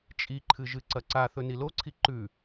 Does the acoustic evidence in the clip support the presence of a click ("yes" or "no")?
yes